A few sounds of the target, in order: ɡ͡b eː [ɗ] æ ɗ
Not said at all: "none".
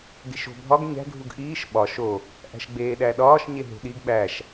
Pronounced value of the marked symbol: ɗ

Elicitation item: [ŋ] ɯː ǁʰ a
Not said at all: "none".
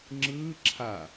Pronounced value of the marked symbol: ŋ͡ǁ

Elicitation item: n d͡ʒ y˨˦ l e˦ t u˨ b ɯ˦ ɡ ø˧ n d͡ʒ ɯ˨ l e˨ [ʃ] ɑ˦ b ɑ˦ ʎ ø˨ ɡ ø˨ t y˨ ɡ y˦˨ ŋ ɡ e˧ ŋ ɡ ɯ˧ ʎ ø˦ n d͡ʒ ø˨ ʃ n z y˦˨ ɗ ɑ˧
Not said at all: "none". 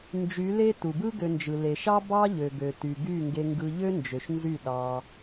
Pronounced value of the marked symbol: ʃ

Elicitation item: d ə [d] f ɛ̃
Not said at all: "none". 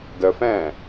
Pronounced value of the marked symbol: none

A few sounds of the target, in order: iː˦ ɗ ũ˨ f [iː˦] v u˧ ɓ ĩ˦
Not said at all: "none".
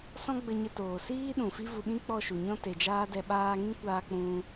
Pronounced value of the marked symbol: i˦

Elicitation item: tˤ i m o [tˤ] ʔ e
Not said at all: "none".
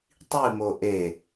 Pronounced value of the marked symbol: none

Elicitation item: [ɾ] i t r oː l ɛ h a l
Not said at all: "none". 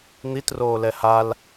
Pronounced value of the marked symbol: n̪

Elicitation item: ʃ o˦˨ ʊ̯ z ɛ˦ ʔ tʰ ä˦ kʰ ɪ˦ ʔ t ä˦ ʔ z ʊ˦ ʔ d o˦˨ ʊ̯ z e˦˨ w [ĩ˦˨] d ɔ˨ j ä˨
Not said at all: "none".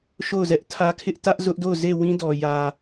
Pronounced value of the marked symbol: ĩ˦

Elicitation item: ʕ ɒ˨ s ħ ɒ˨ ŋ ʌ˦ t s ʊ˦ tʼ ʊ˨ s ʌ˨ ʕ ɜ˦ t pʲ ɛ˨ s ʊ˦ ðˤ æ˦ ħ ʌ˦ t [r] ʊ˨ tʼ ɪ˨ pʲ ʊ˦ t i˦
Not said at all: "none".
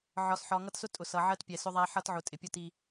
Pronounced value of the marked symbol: ʕ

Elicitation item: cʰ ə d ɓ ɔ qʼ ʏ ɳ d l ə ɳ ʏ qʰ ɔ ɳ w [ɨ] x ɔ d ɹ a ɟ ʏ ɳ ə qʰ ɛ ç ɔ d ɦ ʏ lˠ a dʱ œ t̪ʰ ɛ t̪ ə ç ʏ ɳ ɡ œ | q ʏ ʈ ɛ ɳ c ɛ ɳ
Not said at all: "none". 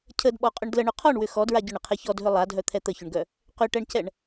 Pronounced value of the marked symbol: ʏ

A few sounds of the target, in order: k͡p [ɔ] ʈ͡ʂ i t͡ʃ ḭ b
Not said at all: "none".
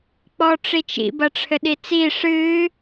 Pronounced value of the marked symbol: ɔ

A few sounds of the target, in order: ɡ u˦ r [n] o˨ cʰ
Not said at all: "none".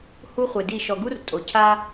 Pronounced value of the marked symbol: tʼ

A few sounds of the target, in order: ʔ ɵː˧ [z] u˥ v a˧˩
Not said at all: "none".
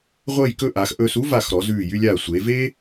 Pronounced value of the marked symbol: s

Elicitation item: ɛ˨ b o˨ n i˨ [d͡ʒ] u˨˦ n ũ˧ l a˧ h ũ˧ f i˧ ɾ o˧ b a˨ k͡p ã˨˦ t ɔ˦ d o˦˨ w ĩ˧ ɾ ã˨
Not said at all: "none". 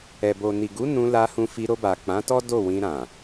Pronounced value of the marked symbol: ɡ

